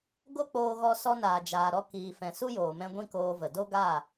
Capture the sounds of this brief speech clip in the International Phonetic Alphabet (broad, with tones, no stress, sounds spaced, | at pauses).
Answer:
ɡ o˦ k͡p oː˧ ɣ ɔ˧ s ɔ˧ n aː˨ d͡ʒ aː˨ ɾ ɔ˧ k iː˨ f ɛ̃˨ s u˦ j oː˨ m ɛ̃˧ ɡʷ ĩ˦ k oː˧ v ə˨ d o˦ ɡ aː˦˨